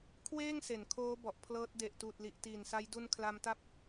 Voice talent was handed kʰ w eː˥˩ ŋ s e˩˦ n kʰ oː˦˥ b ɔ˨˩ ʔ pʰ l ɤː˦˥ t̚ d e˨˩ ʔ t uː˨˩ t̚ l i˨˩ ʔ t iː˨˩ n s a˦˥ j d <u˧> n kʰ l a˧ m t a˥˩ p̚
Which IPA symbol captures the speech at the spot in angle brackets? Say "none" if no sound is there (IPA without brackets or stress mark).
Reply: u˧